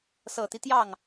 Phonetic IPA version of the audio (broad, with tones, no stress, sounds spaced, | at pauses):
s ɤ˨˩ t̪ i˦ t̪ j ɑ˥˩ ŋ